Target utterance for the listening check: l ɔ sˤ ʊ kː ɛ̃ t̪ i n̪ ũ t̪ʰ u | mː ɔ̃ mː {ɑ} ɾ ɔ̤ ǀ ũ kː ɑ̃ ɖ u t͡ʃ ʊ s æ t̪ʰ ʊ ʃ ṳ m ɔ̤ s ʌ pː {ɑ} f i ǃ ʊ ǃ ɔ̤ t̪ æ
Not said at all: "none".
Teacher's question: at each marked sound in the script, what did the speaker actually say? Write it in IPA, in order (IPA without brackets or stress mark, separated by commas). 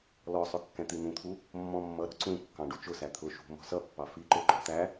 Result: ʌ, ɑ